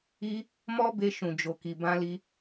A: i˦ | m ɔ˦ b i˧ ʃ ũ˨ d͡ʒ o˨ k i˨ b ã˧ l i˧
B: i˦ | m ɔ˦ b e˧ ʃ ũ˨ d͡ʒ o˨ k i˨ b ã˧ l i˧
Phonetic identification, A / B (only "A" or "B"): B